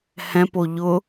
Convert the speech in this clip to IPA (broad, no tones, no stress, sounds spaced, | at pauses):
h ɛ̃ p o ʎ ʊ